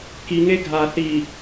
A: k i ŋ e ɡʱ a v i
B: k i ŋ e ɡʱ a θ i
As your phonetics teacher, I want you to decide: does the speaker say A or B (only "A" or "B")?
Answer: B